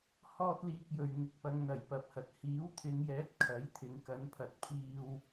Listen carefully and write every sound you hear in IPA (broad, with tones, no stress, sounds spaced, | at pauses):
h ɔː˥ t̚ l iː˧ k̚ j ɵ˨ ɥ ŋ ɪ˨˥ k̚ p ɐ˨˧ ŋ n̪ ɐ˨˩ j p ɐ˨ p̚ h ɐ˨ t̚ h iː˨˥ w t̪ʰ ɪ˨˧ ŋ j ɛː˨˥ t̚ kʰ ɐ˨˥ j t̪ʰ ɪ˨˧ ŋ k ɐ˨˧ n pʰ ɐ˨ t̚ pʰ iː˧ w